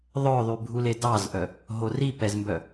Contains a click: no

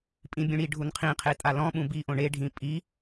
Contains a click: no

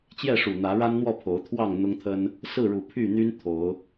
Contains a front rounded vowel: yes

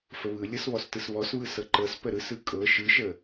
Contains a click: yes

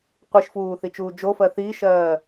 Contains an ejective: no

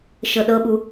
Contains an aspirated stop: no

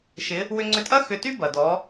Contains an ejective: yes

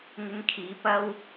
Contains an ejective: no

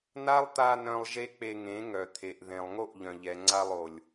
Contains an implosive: no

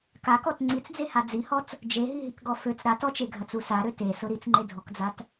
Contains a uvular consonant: no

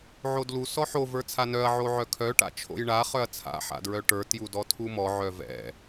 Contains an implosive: no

